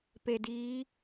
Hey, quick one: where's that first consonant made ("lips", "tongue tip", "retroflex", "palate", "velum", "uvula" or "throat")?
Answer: lips